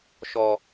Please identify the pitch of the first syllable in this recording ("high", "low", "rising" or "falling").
low